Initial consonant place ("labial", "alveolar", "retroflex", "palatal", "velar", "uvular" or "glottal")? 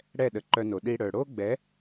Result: retroflex